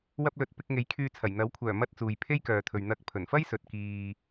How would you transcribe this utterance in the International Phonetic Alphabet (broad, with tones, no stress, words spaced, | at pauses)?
wɐ˧p̚lɵ˨t̚ pɪ˧k̚ŋe˨˥jkʰyː˧t͡sʰɐ˨˩j n̪ɐ˨˥wkʷʰœː˨˩mɐ˧t̚ t͡suː˨jpʰe˥jkœː˨t̪ʰɵ˨ɥ n̪ɐ˧k̚ pʰɵ˨˩nfɐ˥j sɵ˨t̚kiː˨